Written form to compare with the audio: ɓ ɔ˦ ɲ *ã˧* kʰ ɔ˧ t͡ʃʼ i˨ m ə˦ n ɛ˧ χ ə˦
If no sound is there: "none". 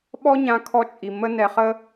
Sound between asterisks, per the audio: ã˧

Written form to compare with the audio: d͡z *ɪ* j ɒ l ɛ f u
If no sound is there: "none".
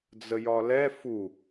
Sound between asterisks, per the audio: ə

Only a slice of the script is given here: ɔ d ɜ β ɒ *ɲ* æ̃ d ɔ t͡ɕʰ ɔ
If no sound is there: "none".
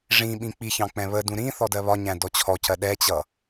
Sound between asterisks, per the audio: ɲ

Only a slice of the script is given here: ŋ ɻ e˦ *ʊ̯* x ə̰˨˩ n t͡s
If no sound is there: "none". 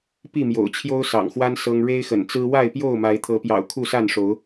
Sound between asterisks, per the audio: ɪ̯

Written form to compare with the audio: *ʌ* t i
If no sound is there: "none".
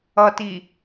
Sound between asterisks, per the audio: ʌ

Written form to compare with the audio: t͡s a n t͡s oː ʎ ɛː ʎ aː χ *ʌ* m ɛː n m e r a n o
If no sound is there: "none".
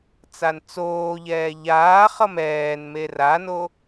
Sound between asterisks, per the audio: ʌ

